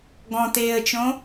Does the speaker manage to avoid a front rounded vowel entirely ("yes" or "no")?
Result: yes